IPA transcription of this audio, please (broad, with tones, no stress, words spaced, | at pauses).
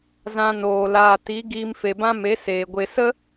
zã˧noː˨ laː˨ti˨˦ ɡiː˧mfe˨bã˦ me˨˦seː˨ɡʷe˧ sə˦